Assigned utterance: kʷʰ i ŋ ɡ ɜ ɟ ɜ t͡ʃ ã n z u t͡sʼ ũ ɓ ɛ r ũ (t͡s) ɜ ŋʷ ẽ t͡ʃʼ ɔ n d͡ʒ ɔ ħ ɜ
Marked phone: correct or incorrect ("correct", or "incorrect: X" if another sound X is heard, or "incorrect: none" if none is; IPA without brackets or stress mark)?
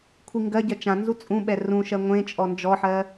incorrect: ʃ